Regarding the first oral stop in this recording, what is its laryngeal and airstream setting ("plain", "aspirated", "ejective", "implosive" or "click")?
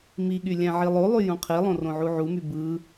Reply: implosive